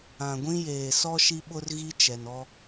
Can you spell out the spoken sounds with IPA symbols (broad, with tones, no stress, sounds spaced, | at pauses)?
ã˨ ɡʷ ĩ˦ j eː˨ s ɔ˦ ʃ i˦ ɓ ʊ˦ r ɣ i˦ t͡ʃ ɛ˨ n ɔ˦